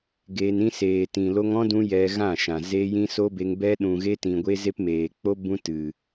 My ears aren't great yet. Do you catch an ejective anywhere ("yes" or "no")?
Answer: no